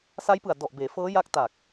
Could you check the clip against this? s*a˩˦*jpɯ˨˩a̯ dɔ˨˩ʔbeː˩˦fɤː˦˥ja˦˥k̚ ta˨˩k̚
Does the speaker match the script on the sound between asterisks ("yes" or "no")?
no